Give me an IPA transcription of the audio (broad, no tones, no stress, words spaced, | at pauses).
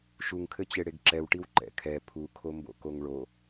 ʃuŋkʰɘt͡ɕe ɽeɡǁɛwʈiw ǃɛ̰kʰɛ pʰukʰombo̰ koŋɭo